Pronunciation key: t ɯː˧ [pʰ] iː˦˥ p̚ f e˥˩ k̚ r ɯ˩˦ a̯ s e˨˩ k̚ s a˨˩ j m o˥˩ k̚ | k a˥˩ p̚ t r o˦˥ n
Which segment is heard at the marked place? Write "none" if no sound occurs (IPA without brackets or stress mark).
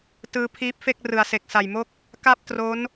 pʰ